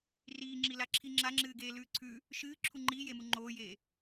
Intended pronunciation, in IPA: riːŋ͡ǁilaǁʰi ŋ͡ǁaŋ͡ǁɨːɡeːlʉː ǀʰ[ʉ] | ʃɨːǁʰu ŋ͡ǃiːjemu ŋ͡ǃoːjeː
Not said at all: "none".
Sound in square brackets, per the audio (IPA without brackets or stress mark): ʉ